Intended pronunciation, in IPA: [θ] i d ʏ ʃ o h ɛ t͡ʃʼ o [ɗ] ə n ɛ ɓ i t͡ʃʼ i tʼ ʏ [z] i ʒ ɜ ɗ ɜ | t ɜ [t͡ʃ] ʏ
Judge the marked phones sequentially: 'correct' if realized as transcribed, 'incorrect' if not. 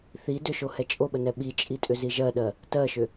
correct, incorrect, correct, incorrect

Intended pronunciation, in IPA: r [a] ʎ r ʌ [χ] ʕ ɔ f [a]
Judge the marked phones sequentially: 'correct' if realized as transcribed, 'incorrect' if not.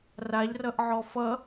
correct, incorrect, incorrect

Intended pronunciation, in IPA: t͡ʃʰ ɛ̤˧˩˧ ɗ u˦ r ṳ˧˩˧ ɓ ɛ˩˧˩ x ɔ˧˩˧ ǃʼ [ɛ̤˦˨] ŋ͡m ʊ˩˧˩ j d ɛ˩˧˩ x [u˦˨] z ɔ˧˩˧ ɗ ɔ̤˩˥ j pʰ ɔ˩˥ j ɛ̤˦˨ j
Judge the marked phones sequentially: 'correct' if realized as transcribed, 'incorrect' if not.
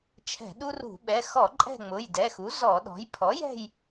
correct, incorrect

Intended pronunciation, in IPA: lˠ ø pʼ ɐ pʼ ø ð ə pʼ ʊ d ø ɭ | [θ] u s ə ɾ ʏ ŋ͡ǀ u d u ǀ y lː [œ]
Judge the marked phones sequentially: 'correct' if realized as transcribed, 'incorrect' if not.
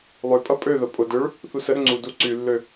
correct, incorrect

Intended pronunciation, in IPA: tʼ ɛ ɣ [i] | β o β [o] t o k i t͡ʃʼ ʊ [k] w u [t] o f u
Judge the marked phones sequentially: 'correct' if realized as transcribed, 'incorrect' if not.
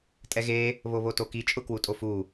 incorrect, correct, correct, incorrect

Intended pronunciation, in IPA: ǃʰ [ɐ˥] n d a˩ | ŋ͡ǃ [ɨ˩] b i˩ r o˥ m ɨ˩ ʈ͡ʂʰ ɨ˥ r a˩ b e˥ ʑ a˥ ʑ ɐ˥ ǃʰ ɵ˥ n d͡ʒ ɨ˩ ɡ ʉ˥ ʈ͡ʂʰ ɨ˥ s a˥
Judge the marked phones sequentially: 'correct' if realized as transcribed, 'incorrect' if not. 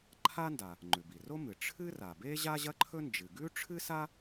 incorrect, incorrect

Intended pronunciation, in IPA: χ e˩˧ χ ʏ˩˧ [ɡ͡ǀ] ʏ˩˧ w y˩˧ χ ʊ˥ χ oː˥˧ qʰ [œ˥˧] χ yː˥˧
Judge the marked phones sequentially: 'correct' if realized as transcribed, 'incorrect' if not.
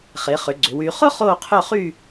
correct, correct

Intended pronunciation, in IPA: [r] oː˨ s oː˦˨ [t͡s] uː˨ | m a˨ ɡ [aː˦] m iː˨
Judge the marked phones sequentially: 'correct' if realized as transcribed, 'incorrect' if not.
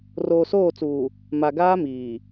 correct, correct, correct

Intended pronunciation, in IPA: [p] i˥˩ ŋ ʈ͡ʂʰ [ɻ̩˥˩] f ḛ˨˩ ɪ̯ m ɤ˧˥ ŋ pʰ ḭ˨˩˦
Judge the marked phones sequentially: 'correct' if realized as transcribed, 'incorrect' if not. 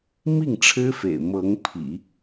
incorrect, incorrect

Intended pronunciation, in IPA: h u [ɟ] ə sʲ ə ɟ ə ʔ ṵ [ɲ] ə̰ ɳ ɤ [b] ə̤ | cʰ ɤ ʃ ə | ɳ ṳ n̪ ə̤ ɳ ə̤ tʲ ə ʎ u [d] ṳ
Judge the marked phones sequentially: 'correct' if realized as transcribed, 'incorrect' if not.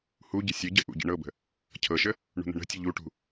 correct, incorrect, correct, incorrect

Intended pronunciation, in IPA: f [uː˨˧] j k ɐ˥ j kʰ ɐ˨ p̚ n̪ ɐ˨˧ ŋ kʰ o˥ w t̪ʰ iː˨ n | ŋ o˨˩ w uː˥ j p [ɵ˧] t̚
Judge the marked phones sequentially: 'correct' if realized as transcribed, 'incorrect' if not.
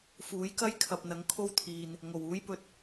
incorrect, correct

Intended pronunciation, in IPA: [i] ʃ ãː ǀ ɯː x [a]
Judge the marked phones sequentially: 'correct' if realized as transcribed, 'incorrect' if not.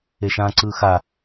incorrect, correct

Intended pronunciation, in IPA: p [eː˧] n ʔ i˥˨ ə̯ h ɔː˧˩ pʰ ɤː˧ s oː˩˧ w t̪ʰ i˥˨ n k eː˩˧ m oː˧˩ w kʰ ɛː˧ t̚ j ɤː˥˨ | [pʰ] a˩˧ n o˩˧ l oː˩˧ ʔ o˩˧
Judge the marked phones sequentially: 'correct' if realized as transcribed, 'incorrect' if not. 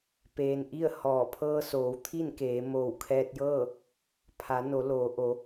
correct, correct

